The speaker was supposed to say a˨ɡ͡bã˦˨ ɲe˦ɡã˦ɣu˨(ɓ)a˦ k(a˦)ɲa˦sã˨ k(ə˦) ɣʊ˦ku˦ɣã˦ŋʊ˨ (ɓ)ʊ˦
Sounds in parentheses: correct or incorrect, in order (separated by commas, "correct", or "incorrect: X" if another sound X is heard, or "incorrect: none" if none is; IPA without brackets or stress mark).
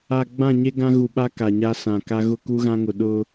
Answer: correct, incorrect: a˨, incorrect: a˦, incorrect: ɗ